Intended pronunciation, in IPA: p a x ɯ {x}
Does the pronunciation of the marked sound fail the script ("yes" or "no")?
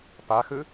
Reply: yes